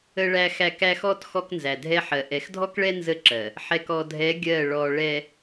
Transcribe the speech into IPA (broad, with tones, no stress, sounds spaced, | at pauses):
ə˨ ɭ æ˨ x æ˨ k æ˦ x ɔ˦ t x ɔ˦ k n z æ˨ dʱ ɛ˦ ħ ɜ˨ ʔ ɛ˨ x dʱ ɔ˦ k ɭ ɛ˦ n z ə˦ ǁ ɜ˨ | ħ ɛ˨ k ɔ˨ dʱ ɛ˨˦ ɡʲ ɜ˦˨ ɭ ɔ˨ ɭ ɛ˨